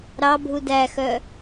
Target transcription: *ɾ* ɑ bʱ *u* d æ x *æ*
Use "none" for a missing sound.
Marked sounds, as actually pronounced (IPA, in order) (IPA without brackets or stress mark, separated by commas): ɾ, u, œ